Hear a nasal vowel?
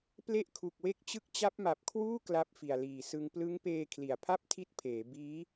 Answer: no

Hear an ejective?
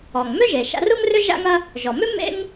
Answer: no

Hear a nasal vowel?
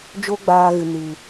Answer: no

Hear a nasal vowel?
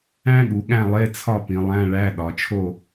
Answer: yes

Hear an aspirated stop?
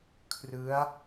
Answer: yes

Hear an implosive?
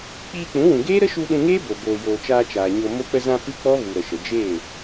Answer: yes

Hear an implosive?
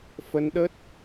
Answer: yes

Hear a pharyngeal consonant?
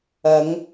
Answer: no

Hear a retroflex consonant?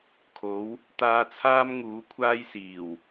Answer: no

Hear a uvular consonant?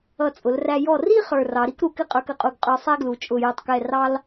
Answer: yes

